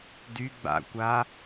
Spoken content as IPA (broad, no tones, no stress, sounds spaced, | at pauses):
d y ɡ͡b a̰ kʷ a